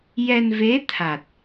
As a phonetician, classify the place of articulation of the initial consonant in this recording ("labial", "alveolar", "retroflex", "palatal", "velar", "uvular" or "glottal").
palatal